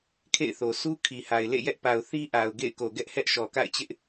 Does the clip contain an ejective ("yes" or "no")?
no